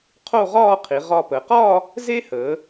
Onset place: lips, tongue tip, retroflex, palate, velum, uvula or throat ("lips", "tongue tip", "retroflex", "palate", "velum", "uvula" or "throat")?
uvula